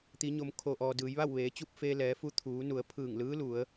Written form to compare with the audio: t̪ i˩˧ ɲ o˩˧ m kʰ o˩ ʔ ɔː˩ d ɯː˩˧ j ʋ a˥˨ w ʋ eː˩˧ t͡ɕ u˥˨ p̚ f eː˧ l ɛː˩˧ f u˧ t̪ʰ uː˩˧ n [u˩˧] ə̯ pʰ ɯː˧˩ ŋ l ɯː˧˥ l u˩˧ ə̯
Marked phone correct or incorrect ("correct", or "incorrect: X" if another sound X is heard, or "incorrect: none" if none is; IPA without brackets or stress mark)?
correct